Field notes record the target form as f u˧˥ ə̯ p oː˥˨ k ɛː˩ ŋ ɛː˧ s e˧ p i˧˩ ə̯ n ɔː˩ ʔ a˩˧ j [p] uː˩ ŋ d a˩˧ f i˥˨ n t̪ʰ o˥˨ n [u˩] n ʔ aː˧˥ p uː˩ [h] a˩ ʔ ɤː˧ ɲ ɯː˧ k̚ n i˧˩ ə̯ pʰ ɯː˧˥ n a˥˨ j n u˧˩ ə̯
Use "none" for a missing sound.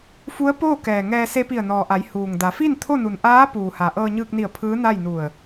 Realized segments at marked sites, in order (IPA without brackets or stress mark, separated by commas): h, u˩, h